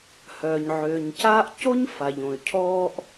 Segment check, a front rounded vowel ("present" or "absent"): present